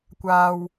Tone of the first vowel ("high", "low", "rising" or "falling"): low